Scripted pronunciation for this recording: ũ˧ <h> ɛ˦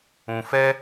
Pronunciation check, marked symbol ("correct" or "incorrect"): incorrect